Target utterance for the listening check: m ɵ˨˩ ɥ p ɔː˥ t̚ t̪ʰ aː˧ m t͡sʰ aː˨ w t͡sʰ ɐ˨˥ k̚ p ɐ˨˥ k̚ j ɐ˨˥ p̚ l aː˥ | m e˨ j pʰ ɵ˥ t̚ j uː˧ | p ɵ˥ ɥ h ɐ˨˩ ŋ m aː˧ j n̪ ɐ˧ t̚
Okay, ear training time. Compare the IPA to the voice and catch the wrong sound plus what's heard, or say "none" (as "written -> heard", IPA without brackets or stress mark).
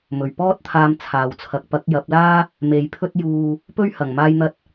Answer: none